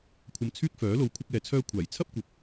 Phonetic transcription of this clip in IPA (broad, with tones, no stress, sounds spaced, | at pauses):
kʷʰ ɐ˧ m t͡sʰ yː˥ k̚ f œː˨˥ l o˧ w kʷʰ ɐ˥ k̚ ɛː˧ t͡sʰ œː˥ kʷʰ aː˨˩ j t͡sʰ ɐ˥ p̚ kʷ ɐ˨ p̚